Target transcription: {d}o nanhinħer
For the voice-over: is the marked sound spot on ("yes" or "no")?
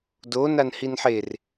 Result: yes